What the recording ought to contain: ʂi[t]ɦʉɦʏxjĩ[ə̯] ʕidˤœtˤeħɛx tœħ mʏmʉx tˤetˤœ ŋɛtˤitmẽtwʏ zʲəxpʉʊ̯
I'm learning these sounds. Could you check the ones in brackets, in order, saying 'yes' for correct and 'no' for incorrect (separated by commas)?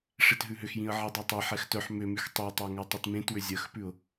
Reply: yes, yes